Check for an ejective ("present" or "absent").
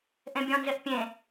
absent